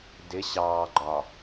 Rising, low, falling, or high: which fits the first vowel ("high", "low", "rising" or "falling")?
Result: rising